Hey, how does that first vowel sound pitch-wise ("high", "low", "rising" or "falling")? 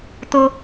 high